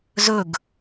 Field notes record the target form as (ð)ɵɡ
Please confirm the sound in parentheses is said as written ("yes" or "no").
no